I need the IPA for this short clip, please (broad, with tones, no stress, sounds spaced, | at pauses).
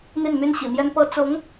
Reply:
n̪ i˥˩ n m y˥ n ɕ ḭ˨˩ m j ɛ˥ n p ɤ˥ t͡s ʊ˧˥ ŋ